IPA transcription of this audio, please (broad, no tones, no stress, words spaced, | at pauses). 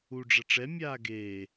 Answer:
u ɖ͡ʐɐʈ͡ʂɛ mʲaːɡeː